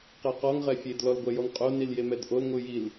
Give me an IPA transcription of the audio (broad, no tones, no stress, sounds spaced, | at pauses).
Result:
q ɛ q ɔ ŋ ʁ ɛ fʲ e d l ɔ l ɡʷ ɛ j ɔ ŋ qʼ o n i l j e m ɛ d ʔ o l ŋʷ ɨ j i l